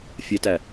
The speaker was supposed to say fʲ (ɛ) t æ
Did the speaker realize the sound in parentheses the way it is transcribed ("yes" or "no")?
yes